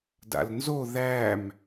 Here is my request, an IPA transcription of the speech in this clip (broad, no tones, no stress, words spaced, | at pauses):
da̰lnzo ðæm